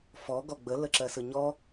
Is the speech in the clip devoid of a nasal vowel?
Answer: yes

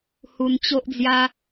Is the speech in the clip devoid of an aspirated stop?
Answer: yes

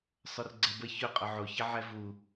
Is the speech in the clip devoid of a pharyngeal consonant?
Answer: no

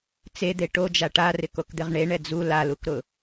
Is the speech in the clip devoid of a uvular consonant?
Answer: no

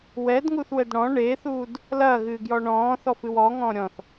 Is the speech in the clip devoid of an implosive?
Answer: yes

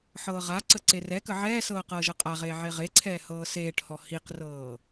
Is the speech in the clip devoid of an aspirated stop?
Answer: no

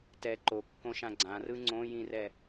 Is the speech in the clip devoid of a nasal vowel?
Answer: no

